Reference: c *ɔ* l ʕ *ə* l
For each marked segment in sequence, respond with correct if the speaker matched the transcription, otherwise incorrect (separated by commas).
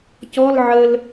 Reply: correct, correct